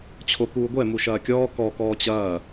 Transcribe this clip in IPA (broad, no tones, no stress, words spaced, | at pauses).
t͡ɕʰokuːɡʷɛ muʃɐːkʲɔː kɔ kɔːt͡ɕɐː